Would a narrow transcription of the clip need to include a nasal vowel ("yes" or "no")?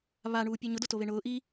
no